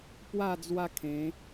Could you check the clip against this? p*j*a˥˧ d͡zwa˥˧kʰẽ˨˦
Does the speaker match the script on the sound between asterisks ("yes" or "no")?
no